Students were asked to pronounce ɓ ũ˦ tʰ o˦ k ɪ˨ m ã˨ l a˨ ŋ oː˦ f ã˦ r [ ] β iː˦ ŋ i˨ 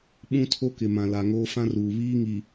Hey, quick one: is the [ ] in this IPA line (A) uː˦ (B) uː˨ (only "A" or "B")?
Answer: B